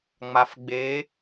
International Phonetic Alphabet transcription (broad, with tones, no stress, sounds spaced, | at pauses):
ŋ͡m a˨˩ f ɡ͡b eː˨˦